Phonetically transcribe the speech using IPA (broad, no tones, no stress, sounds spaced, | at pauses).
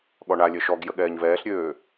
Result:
ɠ ɔ ɳ a lʲ œ ʃ ɔ ɡ j ə ɠ ɛː ɲ v ɛː ɬ ɾʲ øː